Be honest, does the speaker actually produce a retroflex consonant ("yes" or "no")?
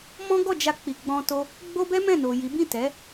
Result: no